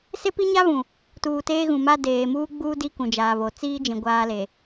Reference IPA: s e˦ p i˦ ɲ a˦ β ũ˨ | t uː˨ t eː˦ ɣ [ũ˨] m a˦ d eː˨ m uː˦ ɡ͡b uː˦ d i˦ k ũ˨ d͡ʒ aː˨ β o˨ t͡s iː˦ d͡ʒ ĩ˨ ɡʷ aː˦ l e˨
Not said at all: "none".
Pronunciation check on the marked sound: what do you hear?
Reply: ũ˨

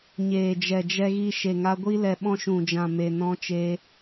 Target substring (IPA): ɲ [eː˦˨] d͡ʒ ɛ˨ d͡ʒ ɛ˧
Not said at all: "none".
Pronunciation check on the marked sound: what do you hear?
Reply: eː˨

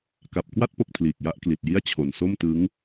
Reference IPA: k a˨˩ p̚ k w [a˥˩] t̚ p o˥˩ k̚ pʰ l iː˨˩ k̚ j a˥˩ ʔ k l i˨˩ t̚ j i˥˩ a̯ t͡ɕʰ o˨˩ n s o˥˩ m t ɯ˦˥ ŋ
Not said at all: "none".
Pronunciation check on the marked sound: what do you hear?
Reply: a˥˩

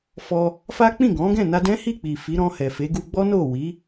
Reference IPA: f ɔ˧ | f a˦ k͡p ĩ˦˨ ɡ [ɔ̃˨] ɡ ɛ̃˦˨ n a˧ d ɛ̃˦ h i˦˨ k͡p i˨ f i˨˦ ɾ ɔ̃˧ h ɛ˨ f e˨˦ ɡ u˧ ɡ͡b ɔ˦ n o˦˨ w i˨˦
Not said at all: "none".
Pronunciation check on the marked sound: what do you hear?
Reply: ɔ̃˨˦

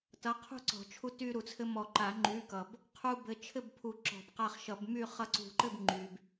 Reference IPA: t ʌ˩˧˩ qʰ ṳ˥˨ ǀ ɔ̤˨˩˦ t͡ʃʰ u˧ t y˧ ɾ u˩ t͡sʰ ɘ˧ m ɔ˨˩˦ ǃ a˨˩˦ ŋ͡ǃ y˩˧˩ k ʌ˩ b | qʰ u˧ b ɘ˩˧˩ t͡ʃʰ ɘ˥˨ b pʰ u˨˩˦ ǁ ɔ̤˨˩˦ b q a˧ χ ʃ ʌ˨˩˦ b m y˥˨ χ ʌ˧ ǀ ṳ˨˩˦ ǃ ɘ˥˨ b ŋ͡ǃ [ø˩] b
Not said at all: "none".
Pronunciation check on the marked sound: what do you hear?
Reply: y˩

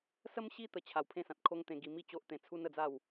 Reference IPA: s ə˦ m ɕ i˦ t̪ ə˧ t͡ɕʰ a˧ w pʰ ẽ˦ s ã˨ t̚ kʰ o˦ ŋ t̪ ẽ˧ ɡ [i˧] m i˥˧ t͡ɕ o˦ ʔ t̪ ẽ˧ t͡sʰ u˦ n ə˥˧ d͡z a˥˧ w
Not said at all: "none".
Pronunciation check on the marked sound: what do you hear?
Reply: i˧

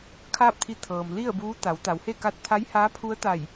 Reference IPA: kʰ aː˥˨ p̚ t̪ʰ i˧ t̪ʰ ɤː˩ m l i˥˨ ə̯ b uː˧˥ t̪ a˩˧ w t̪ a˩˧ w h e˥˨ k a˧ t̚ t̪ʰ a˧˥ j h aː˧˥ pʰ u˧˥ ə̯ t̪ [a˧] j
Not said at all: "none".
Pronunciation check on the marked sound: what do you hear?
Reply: a˧˩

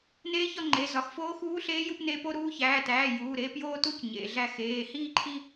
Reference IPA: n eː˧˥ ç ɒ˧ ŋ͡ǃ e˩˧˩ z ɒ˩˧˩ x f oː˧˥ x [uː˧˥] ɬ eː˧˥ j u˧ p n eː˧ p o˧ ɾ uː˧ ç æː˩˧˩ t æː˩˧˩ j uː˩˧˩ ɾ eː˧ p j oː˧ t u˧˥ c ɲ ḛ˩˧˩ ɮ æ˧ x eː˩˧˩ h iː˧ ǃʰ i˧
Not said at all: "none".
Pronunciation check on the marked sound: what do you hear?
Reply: uː˧˥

